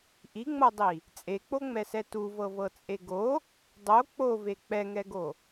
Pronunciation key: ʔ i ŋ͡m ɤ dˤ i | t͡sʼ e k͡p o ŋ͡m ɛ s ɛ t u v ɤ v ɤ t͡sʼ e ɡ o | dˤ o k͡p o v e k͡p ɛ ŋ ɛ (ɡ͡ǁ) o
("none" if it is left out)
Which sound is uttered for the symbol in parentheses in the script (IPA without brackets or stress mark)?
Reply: ɡ